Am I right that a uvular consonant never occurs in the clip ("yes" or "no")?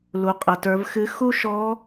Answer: no